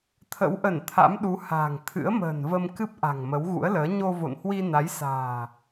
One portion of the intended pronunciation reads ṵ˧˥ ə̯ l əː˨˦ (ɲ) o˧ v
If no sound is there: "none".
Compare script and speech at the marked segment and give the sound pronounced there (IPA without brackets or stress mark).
ɲ